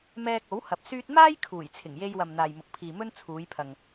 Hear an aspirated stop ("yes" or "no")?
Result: yes